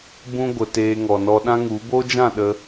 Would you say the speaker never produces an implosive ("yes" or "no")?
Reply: no